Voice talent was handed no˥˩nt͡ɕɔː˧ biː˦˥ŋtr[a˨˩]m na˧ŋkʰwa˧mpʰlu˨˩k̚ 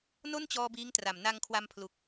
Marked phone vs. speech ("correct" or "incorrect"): correct